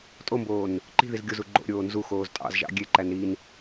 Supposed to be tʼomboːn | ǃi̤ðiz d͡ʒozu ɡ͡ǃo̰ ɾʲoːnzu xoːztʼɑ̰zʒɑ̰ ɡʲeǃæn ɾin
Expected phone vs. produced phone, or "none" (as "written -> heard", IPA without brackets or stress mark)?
d͡ʒ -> ɡʲ